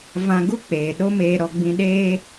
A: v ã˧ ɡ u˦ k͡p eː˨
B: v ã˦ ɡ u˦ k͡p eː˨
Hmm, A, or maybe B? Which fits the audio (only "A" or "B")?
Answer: A